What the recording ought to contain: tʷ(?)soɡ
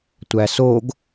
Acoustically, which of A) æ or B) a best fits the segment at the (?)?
A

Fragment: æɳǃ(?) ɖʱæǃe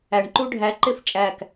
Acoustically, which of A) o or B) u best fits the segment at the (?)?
B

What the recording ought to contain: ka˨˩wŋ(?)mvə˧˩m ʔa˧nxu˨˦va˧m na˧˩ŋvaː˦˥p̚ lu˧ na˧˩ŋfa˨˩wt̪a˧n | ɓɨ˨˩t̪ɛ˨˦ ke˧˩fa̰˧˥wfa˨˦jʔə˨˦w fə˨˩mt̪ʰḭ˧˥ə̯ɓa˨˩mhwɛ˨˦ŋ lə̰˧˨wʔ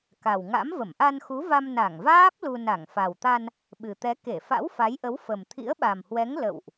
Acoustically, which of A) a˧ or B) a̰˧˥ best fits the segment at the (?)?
B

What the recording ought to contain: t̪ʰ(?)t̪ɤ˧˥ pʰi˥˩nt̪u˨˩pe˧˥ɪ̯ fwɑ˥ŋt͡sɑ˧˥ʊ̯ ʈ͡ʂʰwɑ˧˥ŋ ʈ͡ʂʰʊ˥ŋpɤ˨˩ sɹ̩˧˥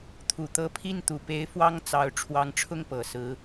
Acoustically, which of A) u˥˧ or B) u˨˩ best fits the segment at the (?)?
B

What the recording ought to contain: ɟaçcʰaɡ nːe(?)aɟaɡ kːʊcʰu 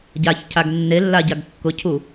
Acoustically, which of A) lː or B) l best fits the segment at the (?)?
A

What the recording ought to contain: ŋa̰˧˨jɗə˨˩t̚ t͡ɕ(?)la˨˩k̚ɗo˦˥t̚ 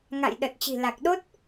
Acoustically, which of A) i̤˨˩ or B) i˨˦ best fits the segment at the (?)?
A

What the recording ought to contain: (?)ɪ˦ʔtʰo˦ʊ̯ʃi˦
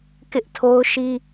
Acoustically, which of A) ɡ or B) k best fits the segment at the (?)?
B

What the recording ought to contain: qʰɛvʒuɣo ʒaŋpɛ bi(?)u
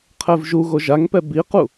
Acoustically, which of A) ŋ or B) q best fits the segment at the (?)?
B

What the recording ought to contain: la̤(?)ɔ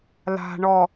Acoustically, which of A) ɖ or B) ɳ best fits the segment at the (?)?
B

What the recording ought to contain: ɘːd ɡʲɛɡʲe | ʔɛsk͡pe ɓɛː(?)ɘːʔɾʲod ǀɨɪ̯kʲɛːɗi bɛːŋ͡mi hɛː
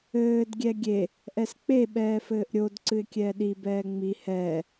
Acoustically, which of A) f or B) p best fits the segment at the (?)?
A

